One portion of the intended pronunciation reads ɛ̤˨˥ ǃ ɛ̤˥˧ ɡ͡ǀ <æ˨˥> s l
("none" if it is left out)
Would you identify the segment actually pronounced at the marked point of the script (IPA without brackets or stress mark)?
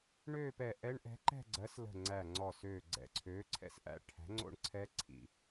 ɜ˨˥